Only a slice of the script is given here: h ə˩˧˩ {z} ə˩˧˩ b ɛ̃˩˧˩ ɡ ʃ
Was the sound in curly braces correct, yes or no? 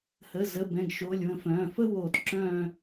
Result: yes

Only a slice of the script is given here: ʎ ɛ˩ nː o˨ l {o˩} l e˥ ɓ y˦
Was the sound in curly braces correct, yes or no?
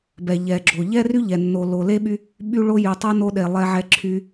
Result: no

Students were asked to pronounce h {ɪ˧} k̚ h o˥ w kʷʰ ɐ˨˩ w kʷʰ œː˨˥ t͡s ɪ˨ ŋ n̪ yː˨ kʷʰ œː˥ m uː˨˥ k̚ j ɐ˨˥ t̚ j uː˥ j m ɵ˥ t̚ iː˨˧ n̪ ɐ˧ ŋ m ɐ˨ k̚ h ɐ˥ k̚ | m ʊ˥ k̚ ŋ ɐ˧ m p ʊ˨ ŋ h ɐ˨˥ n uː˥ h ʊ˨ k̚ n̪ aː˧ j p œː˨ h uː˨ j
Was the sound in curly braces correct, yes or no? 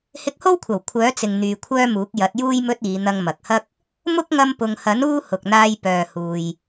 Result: yes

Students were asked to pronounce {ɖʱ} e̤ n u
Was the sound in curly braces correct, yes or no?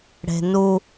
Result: no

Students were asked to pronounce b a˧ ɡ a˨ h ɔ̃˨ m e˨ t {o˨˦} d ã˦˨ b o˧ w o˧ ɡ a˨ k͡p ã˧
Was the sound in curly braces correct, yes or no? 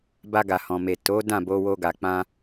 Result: yes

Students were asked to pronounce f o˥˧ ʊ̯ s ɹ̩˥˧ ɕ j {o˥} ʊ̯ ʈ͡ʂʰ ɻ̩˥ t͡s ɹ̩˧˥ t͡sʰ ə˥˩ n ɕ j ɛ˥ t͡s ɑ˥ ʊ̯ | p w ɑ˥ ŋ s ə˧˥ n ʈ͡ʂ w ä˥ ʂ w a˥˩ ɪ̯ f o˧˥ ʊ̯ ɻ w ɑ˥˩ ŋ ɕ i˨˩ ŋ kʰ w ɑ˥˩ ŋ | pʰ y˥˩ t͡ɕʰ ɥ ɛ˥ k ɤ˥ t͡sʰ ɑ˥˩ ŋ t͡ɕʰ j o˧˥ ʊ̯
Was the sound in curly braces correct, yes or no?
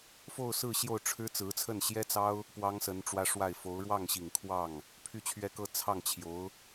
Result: no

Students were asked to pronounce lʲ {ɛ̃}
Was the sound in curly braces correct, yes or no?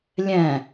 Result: yes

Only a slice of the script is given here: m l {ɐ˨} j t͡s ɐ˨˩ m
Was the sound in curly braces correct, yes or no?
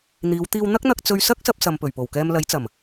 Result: no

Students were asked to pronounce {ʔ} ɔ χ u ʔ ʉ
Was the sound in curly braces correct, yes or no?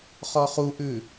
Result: no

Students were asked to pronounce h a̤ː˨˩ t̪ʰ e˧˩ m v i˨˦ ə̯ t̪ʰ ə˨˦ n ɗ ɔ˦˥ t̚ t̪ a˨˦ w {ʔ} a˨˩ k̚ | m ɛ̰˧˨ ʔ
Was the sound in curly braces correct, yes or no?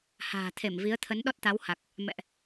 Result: no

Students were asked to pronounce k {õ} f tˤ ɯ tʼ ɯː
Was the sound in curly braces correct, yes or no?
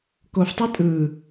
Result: no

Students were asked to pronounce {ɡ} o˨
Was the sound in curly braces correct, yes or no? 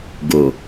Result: yes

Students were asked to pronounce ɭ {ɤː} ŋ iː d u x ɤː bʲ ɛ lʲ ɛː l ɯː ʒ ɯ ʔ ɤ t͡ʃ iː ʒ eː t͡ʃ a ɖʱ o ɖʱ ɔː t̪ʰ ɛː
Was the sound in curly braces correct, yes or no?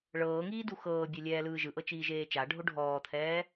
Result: yes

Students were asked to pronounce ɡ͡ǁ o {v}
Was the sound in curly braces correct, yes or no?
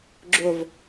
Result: yes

